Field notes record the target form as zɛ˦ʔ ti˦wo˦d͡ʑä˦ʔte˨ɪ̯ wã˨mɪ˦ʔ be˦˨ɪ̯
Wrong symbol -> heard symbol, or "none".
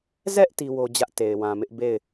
none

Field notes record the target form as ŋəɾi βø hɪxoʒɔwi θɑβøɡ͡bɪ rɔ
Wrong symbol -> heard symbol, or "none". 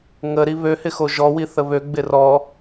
ɑ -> ə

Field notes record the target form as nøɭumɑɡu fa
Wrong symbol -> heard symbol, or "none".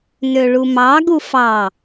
a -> ɑ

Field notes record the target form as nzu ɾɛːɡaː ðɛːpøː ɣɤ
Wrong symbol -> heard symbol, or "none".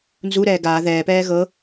øː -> ɛː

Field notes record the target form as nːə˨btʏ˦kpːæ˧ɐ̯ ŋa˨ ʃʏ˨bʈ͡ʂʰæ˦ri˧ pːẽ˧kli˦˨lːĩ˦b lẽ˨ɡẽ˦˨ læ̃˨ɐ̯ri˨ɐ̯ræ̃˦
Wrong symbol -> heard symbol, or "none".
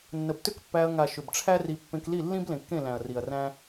ɡ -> kː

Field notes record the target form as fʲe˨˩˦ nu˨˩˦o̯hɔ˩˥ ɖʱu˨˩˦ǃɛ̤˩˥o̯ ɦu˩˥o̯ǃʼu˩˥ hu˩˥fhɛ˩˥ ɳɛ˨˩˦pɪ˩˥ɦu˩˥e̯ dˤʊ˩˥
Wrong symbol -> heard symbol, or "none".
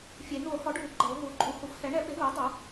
none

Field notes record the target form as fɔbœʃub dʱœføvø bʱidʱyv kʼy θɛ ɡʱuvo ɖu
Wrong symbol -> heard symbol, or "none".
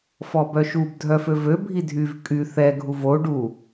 none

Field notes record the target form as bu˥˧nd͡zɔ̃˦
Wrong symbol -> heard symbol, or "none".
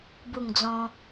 n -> ŋ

